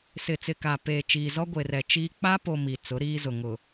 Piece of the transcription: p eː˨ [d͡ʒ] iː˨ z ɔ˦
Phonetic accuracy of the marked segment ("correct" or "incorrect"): incorrect